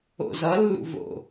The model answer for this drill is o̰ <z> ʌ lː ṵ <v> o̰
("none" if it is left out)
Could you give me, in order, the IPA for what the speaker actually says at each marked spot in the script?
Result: z, v

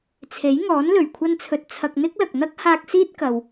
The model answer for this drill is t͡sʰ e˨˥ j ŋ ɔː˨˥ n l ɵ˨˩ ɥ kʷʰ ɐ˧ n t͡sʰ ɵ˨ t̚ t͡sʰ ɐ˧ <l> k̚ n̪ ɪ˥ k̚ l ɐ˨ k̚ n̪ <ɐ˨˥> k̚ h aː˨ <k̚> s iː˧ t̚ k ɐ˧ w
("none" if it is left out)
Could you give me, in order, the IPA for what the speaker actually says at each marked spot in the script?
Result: none, ɐ˥, k̚

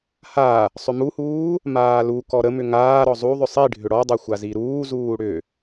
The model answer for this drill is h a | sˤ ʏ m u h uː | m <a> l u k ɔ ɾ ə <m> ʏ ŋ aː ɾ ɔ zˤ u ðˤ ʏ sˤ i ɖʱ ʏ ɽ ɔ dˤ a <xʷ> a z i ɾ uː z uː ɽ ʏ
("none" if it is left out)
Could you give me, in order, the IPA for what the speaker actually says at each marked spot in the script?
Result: aː, m, xʷ

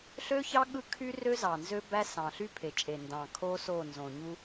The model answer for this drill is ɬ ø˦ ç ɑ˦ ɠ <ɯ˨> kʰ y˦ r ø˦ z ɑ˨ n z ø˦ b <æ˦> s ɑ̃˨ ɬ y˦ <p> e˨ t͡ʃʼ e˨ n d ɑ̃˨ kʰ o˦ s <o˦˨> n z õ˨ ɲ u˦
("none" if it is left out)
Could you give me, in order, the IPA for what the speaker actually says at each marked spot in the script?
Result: ɯ˦, æ˦, pʰ, o˦˨

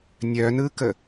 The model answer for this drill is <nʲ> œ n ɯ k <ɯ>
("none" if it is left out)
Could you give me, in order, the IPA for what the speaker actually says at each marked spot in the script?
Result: nʲ, ə

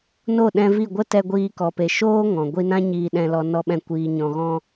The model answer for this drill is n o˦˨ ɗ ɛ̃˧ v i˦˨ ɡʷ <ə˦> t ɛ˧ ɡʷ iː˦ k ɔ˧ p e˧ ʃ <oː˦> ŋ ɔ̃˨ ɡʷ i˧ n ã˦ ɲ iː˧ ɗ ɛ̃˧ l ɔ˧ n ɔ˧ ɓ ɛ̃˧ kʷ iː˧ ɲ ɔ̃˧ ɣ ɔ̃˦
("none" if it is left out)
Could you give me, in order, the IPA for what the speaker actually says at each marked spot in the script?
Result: ə˦, oː˦

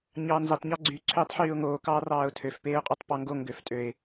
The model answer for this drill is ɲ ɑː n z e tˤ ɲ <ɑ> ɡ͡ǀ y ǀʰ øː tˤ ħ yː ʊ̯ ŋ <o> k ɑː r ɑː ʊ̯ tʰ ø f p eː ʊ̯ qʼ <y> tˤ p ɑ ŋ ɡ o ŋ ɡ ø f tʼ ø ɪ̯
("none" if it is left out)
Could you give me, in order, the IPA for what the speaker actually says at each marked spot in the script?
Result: ɑ, oː, y

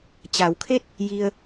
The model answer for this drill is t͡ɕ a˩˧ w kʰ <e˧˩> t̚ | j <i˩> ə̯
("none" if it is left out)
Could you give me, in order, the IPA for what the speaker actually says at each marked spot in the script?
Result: e˥˨, i˧

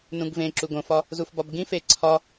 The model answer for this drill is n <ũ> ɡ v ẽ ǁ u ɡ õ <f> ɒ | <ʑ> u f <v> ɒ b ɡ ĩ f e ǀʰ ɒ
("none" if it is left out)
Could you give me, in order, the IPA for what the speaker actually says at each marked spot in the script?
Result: ũ, f, z, b

